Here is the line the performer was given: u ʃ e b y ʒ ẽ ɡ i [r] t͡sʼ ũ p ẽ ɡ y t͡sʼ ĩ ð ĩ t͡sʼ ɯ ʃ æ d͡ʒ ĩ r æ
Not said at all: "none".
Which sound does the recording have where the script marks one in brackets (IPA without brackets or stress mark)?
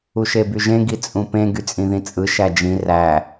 none